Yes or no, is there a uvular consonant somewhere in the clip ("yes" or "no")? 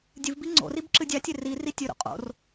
yes